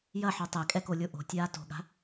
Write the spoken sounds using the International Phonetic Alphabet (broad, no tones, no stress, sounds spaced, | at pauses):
j ɐ ħ o tˤ ɛ kʼ ɛ k o lʲ o ʔ o̤ tʲ aː t o̤ ɠ a̤